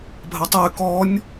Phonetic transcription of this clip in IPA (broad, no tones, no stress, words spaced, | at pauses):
bʱɐtˤoy̯ kɔnʲ